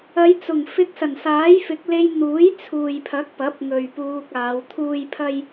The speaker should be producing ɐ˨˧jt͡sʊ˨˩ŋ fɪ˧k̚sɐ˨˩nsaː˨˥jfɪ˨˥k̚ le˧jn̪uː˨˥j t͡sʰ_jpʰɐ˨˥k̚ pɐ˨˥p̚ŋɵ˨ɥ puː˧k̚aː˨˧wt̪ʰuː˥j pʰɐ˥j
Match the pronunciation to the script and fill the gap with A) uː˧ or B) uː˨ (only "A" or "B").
B